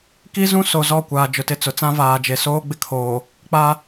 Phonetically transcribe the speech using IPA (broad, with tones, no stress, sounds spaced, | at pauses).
k i˦ z ũ˦ s o˨ z ɔ˦˨ kʷ aː˨ d͡ʒ ʊ˨ t ɪ˦˨ t͡s ʊ˨ t͡s ã˦ v aː˨ d͡ʒ e˨ s oː˦ ɡ͡b ɪ˦ kʰ oː˨ | k͡p a˦